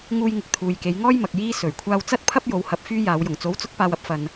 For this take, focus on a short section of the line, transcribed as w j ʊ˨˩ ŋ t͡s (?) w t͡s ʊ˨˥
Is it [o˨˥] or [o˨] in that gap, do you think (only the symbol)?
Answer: o˨˥